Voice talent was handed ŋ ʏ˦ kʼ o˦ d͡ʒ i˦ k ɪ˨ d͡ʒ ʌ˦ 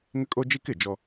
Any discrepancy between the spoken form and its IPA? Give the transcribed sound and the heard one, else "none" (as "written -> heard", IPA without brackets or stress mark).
ʌ˦ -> ɔ˦